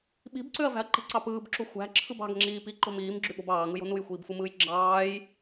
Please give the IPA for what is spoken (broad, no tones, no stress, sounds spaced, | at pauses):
ɓ i̤ b ǀ ø ɐ̯ v æ̤ ɐ̯ ǃ i̤ ǀ ɑ p ɯː b ǁ u xʷ æ̤ ǁʰ ɯ b ɑ̤ ɡ ŋ͡ǁ iː p i ǃ o̤ m iː m ɡ͡ǁ y ɓ o̤ b ɑː ŋ ɯ j o̤ n u j xʷ iː b f ɯ m ɯː j ɡ͡ǁ ɑː j